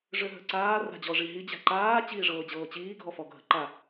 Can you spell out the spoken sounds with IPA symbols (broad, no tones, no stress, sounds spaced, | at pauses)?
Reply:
ʐ ø ɦ ə̤ ǀ aː r a̤ d͡ʑ ɔ ʐ i ɦ i d͡ʑ a̤ ǃ aː t͡ɕ iː ʐ ɤː d͡ʑ ɤː t͡ɕ iː ɡʱ ɔ f ɔ ɡʱ ə̤ ǃ a